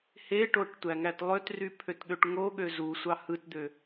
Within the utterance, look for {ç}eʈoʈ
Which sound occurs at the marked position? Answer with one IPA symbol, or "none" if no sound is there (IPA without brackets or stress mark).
h